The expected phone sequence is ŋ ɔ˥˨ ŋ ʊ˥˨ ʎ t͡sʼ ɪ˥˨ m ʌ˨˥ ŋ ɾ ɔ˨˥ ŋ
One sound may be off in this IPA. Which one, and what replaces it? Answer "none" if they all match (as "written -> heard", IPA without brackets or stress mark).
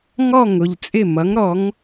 none